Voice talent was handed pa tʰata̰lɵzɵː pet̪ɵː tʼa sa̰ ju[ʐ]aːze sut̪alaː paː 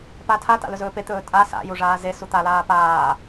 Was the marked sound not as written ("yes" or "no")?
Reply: no